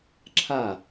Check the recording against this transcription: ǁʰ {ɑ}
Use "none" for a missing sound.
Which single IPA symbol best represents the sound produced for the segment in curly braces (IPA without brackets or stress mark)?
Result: a